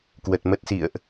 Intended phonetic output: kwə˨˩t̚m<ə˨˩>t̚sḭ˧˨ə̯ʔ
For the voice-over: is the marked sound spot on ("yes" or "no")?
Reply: no